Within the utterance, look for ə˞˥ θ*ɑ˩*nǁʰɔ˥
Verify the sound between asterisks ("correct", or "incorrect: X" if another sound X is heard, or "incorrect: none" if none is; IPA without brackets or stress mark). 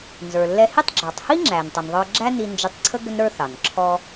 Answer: correct